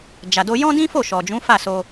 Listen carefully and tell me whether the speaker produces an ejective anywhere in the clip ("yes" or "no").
no